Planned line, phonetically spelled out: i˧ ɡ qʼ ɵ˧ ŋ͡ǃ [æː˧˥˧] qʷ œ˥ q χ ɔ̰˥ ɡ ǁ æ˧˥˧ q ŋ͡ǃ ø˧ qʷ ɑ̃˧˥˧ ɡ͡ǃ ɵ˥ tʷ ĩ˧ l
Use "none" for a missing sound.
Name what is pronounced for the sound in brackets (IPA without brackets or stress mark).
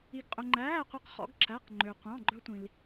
æː˧˥˧